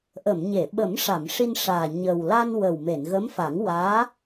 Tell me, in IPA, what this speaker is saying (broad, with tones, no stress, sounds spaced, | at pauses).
ʔ ə˨˩˨ m ɲ e˨˩˨ ɓ ə˨˩˦ m ʂ a˨˩˨ m ʂ i˧ n ʂ aː˨˩ ɲ ə˨˩ w l a˧ n w ə˨˩ w m e˨˩˨ n ɣ ə˧˥ m f a˨˩˦ ŋ w aː˧˥